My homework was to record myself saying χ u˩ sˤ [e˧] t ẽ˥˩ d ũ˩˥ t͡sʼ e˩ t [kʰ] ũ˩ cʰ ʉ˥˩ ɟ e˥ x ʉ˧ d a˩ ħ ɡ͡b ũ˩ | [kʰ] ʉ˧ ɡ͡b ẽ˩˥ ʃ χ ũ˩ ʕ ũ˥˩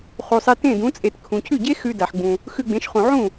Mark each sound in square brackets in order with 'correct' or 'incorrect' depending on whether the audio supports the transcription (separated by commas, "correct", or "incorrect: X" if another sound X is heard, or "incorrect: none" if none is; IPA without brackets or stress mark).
correct, correct, incorrect: x